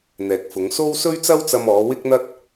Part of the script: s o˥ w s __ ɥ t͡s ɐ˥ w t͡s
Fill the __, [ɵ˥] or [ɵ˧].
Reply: ɵ˥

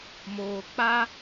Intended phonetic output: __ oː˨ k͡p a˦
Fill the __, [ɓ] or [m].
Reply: m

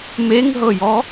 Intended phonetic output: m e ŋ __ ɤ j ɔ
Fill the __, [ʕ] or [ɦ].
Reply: ɦ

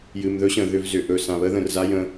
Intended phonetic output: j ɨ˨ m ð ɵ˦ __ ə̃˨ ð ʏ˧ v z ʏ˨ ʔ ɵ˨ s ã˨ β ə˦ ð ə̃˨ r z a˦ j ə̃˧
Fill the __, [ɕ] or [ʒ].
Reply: ɕ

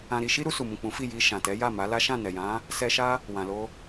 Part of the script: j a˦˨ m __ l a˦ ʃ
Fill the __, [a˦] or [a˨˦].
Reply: a˨˦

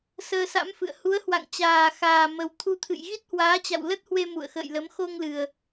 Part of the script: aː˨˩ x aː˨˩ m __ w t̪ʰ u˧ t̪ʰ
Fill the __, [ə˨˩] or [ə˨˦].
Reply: ə˨˩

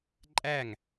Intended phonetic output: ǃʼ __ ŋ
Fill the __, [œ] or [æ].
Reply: æ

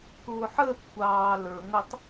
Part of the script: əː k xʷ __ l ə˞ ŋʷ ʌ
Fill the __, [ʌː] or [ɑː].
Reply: ɑː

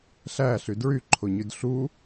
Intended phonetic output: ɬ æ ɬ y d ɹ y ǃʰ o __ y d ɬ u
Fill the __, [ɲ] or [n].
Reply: ɲ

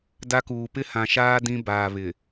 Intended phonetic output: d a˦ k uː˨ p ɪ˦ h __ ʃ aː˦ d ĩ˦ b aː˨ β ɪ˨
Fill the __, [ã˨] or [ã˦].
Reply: ã˨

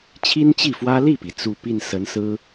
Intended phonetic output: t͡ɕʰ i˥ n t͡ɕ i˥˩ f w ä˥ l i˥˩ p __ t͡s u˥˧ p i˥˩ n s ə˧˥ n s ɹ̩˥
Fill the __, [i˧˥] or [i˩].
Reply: i˩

